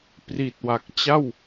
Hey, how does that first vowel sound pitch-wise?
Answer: low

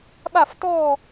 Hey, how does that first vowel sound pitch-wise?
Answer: falling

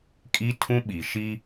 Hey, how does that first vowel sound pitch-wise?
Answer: high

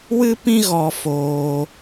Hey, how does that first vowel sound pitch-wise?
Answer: high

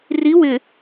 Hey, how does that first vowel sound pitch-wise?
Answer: rising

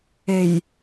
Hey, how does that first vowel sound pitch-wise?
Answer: low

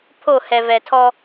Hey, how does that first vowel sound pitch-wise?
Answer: falling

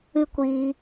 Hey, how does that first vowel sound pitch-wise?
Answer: high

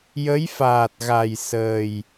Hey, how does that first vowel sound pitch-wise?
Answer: rising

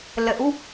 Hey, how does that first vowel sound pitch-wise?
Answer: rising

